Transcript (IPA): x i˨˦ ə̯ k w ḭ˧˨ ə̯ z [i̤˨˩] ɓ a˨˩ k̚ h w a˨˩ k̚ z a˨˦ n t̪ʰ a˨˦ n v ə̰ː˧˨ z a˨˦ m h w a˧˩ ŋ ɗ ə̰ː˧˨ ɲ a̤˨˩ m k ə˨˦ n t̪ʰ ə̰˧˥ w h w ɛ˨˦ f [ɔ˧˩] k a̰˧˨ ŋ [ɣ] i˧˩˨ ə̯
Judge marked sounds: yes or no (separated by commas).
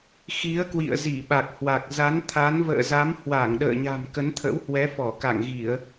no, yes, yes